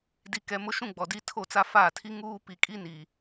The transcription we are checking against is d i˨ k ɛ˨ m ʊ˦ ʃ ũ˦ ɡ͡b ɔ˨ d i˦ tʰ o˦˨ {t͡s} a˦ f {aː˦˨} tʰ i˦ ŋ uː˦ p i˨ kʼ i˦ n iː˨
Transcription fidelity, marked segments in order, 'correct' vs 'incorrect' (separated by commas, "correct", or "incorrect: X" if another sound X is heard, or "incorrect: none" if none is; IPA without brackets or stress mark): correct, correct